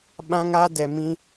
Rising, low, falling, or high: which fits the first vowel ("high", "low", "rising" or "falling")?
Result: high